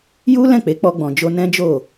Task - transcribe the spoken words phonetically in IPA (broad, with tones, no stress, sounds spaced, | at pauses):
j u˦ l ɛ̃˦˨ k͡p e˨˦ k͡p ɔ˧ ɡ͡b ɔ̃˨ d͡ʒ o˧ n ɛ̃˦ d͡ʒ o˦˨